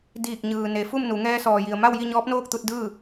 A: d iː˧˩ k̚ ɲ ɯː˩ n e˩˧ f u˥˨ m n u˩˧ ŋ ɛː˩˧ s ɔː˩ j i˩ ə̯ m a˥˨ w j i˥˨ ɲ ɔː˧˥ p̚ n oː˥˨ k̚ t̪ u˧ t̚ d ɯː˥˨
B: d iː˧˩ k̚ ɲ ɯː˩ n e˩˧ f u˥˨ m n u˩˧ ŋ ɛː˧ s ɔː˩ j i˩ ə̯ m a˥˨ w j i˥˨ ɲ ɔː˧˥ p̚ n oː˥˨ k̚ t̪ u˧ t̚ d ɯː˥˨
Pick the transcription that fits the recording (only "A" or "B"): B